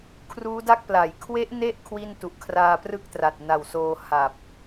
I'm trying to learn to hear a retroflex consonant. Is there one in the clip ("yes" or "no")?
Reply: no